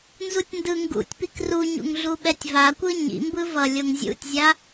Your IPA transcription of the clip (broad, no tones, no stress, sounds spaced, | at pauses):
n z u tʲ n d ɯ ŋ ɡ ṵ tʲ p i k r u ɲ ṵ ŋ ɮ u ɓ ɛ tʲ v a kʷ ɯ ɲ ḭ m b ɯ v ʌ lʲ o ŋ zʲ ṵ tʲ zʲ a